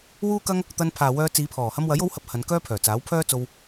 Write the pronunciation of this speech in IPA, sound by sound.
wuː˥kɐ˥ŋ | t̪ɐ˧n pʰaː˨wœː˧t͡siː˨˧pʰɔː˨˩ hɐ˧mwɐ˨˥jo˨˥whɐ˨˥p̚ hɐ˨˧n kœː˥pʰœː˨˩ t͡saː˨˥wpʰœː˥ t͡so˧w

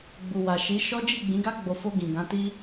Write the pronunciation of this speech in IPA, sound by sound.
ɡ͡bu˨wa˨ ʃi˨˦ʃɔ˦ d͡ʒi˦˨ɡ͡bĩ˨˦ɡa˦ ɡ͡bo˧ fo˧ ɡĩ˨ɡã˨˦ti˦

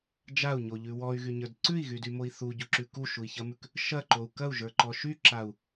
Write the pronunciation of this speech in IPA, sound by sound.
d͡ʒau̯ɲoʎʉ wɔy̯ɣyɲə˞d ǀʉi̯ɣydymoi̯ θuɟuǁʉ kuʃui̯çɐmʉk | ʃɐǃou̯ kɐu̯ʒə˞ǃɔ ʃyǁau̯

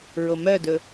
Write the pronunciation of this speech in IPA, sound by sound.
ɹomœdɵ

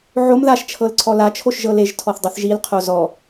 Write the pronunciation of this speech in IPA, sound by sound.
ʕom ðaʃ t͡ʃʰɤlǀʰɔla t͡ʃʰoʃʒɤleʒ tʰɔθdˤiθʒil qʰozɔ

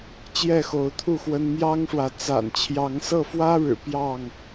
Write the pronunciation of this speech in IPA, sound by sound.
t͡ɕjɛ˥˨xo˨˦ʊ̯t̪ʰu˥˨xwə˦n mjɑ˦ŋʂwä˨ t͡sa̰˨˩nt͡ɕʰjɑ˨˦ŋsɤ˥˨ fwä˦ɻɻ̩˨˩ pjɑ˥˨ŋ

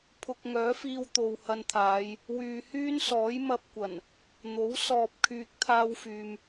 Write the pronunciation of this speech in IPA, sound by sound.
pʰʊ˧k̚ŋœː˨˥fiː˧w t̪o˨whɐ˧nt̪ʰaː˨˧j | wyː˨hyː˥nsɔː˨˥j mɐ˧p̚kʷɐ˨˩n | n̪o˨˥w sɔː˨p̚kʰyː˨k̚ t̪ʰaː˧wfyː˨m

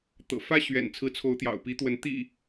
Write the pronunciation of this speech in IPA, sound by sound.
t̪ɤ̰˨˩ fä˦ ɕɥɛ̰˨˩nt͡sʰɹ̩˨˦ t͡sʰo˨˦ʊ̯t̪jɑ̰˨˩ʊ̯pi˨˦t̪wə˨˦n t̪ḭ˨˩

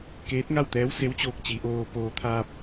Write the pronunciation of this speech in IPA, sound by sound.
keː˧˥t̚ŋa˥˨wt̪ɛː˧˥w se˧˥wt͡ɕoː˧k̚ t͡ɕi˩˧ʔoː˧poː˧ t̪ʰaː˧p̚

